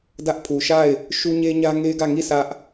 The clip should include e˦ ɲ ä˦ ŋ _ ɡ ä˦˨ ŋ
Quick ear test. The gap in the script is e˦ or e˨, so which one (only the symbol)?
e˦